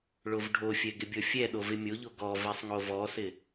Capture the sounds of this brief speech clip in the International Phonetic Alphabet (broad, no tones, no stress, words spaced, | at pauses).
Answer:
ɭovɖʱofʲɛ ɡɪbʲɔfʲɛ ɗovɪmʲoʎo ɡɔ vɛsˤŋovɔsɪ